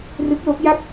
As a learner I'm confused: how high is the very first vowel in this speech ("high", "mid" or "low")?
high